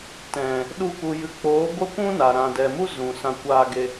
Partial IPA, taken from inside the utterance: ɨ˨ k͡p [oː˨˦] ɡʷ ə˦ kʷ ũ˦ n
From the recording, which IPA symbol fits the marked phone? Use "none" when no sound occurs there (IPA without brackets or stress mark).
oː˨˦